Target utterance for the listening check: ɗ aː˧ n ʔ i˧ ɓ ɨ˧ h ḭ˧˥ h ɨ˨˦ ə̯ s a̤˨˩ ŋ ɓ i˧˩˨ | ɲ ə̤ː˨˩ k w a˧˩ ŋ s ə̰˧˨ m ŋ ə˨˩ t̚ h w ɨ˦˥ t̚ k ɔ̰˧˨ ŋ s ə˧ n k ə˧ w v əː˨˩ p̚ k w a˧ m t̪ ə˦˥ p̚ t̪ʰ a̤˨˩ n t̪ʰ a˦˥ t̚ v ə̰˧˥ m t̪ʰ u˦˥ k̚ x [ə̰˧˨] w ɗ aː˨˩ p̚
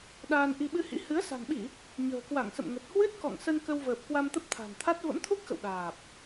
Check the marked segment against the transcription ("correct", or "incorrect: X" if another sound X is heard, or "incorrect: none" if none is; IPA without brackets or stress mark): correct